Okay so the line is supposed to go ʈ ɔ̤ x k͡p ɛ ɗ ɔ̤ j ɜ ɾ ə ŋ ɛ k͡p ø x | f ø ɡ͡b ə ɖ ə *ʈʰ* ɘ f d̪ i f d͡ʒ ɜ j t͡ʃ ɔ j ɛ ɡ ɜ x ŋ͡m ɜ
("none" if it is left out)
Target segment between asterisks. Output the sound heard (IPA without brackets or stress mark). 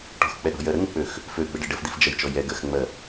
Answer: ɖ